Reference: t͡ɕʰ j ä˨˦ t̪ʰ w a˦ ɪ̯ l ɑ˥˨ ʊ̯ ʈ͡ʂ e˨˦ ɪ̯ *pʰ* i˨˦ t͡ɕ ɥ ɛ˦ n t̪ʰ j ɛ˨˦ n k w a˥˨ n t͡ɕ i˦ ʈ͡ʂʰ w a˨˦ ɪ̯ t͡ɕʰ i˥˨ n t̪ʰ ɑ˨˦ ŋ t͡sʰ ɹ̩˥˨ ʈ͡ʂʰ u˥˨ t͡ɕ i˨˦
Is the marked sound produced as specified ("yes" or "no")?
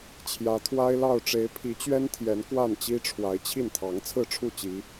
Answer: yes